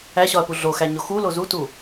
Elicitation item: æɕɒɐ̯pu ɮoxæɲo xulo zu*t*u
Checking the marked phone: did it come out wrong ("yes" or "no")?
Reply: no